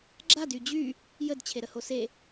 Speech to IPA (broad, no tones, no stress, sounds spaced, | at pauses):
ɡ͡ǁ a d y d͡ʑ y | j ə d t͡ɕʰ e ɾ ə h o s e